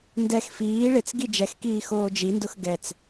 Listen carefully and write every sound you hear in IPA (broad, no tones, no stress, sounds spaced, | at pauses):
n d ɛ x f iː ɭ ɪ t͡s ɡ i d͡ʒ ɛ x k iː x oː d͡ʒ i n d ʊ x ɡ ɛ t͡s